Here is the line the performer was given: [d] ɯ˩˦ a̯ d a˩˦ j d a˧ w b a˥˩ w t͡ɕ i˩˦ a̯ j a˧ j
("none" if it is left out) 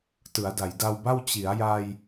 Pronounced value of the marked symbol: t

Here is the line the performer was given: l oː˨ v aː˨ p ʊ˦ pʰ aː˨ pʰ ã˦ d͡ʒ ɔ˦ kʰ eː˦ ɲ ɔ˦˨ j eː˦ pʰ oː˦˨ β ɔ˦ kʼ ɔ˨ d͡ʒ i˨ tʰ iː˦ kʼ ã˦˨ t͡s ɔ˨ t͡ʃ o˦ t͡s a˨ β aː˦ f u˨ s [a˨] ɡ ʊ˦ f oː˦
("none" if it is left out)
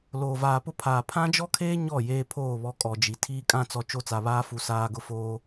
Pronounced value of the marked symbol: aː˨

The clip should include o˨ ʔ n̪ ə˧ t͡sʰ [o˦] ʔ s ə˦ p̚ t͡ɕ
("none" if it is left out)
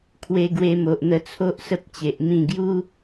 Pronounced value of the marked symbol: o˦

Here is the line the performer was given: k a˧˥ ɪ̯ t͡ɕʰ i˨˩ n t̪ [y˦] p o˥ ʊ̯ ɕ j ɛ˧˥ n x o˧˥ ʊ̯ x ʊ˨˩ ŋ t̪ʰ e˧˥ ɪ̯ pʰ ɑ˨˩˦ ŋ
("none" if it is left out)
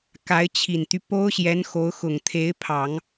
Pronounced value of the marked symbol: y˦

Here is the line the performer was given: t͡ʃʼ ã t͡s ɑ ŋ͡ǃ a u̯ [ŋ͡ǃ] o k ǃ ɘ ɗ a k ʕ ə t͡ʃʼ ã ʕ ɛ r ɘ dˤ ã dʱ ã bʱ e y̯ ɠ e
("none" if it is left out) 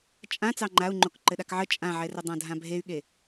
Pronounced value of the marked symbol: ŋ͡ǃ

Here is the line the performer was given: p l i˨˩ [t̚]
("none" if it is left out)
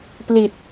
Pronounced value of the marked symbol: t̚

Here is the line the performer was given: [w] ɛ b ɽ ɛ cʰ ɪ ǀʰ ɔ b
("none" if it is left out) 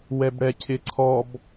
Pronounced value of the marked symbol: w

